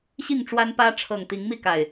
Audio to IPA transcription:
ɕi˥˨ŋʈ͡ʂwa˦npä˦ ʈ͡ʂʰɤ˨˩ŋ t̪i˨˦ŋmi˥˨ka˨˩ɪ̯

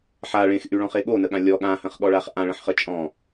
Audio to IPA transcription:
ħa ɭẽxʔyɭɔ̃χe ɠonəɠã lʲɔ ɠãhə̃χɠɔɭaχ ʔãɭə̃ħχə t͡ʃʼɔ̃

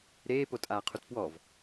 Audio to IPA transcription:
ɾeːpotʼaːqʰut pwɔv

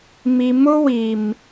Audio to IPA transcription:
mi˨mʊ˦wi˨m

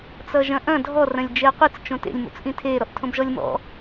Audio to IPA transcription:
t͡sʌʒɐ̃ʔɐ̃ dʱɔ rɐ̃lʲd͡ʒeɐ̯qʷit͡s t͡ʃõtḛlʲ mo̰t͡sʔĩtʰe ɾɔʔtʰõbʒɔlʲmɔ̰

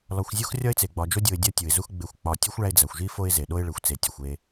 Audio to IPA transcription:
lɒ˨xʷzʲo˥x rʲɒ˥ɪ̯t͡se˩ɡ͡bɒ˨ d͡ʒo˥dʲo˨ɪ̯ dʲɒ˦ tʲu˩ɪ̯zu˦x ɡ͡be˨xʷk͡pɒ˨ tʲu˥xʷɭæ˦ɪ̯ d͡zæ˩xʷʒi˥ fo˥ɪ̯ze˩ ɗo˦ɪ̯ɭe˩xʷ t͡se˨tʲɒ˨xʷe˦

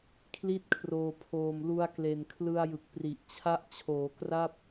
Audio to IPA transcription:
kʰli˥˩t̚kʰroː˨˩pʰoː˨˩m lu˧a̯kle˨˩nkʰlɯ˧a̯ jɯ˨˩k̚pri˨˩ʔt͡ɕʰa˥˩ʔ t͡ɕʰoː˩˦kra˥˩p̚

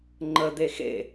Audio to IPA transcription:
ŋ͡ǃə d̪exḛ

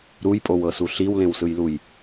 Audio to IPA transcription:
ɾujpʼowɤsu ɬiwlẽwsɯjluj

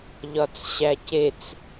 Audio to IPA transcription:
ʎɒt͡sɕæcet͡s

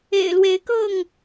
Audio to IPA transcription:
ḛ˨˩ɪ̯lwe˨˦ɪ̯kɤ˥˨ŋ

